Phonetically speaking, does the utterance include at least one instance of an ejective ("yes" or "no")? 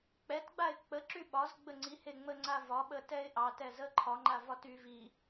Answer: no